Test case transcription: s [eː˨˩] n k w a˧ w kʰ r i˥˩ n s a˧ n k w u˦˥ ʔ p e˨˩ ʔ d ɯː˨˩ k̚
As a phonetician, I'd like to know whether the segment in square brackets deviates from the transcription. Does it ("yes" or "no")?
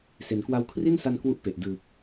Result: yes